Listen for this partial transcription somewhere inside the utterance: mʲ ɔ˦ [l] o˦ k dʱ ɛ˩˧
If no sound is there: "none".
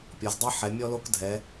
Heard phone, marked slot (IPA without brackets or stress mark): l